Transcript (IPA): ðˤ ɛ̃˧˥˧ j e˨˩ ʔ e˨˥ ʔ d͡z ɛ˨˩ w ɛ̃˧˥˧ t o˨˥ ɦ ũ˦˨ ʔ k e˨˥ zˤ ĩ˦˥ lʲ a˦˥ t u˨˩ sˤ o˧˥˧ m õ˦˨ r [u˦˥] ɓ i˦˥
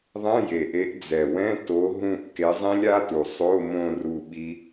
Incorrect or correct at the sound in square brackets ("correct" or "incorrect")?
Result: incorrect